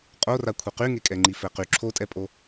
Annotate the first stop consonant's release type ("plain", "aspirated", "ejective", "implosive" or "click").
ejective